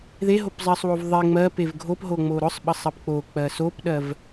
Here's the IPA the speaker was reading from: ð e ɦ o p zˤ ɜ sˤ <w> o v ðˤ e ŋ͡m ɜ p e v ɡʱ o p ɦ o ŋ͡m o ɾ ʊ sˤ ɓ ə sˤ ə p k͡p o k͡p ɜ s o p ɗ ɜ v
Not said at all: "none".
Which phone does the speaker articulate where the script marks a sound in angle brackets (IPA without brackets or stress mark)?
w